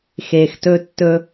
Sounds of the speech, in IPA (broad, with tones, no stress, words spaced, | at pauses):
xe˩xtɵ˨ tːɵ˨